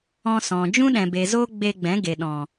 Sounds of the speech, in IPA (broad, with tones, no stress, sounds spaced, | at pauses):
ɔ̃˧ s ɔ̃˨ d͡ʒ ũ˦ ɗ ɛ̃˨ b e˨ z o˦ ɡ͡b e˧ ɡ͡b ɛ̃˨˦ ɡ e˨ ɗ ɔ̃˨